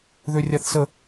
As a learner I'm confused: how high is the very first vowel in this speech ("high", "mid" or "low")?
mid